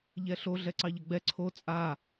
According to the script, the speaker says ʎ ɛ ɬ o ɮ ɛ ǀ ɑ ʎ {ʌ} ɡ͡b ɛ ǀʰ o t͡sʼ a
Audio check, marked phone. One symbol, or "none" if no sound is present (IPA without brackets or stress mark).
ʌ